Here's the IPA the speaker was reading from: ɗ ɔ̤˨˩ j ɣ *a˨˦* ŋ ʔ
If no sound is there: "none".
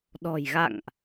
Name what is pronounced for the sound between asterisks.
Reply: a̰˧˨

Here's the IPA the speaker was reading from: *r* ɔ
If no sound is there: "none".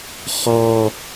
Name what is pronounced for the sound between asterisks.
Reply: χ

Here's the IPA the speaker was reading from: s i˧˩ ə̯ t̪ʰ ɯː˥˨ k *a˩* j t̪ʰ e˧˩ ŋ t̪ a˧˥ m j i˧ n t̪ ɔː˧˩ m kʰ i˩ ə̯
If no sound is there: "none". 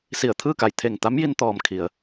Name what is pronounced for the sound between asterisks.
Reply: a˧˩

